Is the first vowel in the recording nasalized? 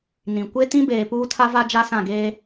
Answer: yes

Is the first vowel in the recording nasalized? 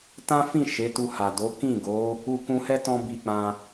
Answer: yes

